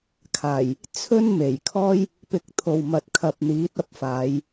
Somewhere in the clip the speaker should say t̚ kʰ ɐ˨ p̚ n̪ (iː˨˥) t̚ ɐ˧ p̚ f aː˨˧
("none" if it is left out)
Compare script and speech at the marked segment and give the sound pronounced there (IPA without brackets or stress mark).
iː˨˥